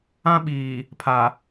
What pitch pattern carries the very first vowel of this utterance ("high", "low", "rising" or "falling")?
high